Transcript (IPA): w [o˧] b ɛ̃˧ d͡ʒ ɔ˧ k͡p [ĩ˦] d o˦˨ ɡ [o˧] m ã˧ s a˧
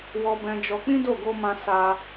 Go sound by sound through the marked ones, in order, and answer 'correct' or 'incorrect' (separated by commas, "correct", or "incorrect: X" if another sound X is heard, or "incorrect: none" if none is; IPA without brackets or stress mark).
incorrect: ɔ˧, correct, correct